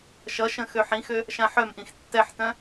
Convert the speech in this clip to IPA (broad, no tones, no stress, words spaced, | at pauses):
ʃʌʃə̃ xøħĩxø | ʃãħœmʔĩx tːɛħtœ̃